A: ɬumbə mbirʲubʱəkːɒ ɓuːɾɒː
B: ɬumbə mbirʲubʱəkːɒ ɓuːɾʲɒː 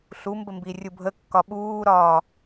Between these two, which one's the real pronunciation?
A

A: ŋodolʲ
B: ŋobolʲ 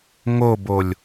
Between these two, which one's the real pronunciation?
B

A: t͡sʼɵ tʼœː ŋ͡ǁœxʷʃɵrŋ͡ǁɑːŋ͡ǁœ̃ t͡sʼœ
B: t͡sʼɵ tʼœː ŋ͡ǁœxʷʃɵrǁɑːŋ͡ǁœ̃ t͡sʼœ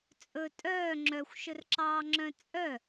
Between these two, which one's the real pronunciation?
B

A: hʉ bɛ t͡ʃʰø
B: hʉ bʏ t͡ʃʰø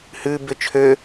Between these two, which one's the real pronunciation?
B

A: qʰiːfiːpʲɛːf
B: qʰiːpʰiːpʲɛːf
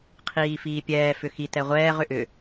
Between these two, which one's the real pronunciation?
A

